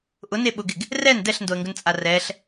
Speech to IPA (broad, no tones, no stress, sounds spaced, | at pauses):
ʔ ʊ n e ɓ ʊ ɡ ɪ ɡ | r ɛ n d ɛ ɬ n d o ə̯ ŋ ɡ ʊ n t͡sʼ a r ɛ ɬ